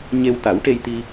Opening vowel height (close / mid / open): mid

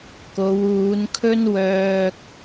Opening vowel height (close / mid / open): mid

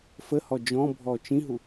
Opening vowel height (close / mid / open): mid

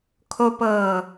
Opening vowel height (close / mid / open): mid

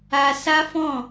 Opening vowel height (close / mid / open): open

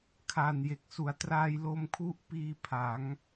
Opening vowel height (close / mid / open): open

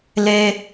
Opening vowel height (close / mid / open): mid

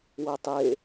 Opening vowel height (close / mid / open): mid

